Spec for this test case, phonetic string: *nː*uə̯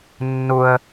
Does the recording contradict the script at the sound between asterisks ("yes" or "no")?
no